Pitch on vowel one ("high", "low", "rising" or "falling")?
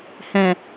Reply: low